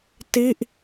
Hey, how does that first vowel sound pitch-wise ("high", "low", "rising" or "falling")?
falling